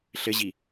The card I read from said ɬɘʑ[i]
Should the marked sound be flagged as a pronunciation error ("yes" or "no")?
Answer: no